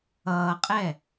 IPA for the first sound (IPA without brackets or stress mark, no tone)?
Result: ʌː